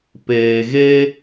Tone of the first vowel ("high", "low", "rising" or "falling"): low